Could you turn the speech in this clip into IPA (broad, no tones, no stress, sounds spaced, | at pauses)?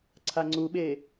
ǀʰ a ŋ͡ǀ u ɓ e